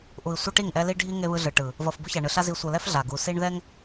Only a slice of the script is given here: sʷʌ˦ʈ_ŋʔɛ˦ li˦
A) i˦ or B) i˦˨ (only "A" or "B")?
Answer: B